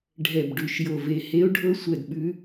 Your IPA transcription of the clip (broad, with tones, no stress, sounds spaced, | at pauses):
ɖʱ ɛ˧˩ b ɖ ʉ˧˩ ʃ j o˧˩ v e˧˩ h e˧˥ o̯ ɖʱ ɤ˧˥ sʷ ɛ˧˩ d ɓ ʉ˧˥